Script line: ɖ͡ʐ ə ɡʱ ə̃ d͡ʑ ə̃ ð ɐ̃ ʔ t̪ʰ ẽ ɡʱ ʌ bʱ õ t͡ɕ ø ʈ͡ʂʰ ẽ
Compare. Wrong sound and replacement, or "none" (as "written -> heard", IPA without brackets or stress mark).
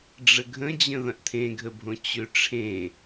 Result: ʌ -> ə